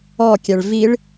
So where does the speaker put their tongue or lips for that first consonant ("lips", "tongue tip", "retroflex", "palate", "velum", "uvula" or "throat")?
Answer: velum